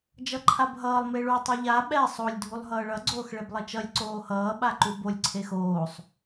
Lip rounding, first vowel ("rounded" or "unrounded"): unrounded